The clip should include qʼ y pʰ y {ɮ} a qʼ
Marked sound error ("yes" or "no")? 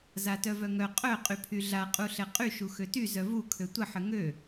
no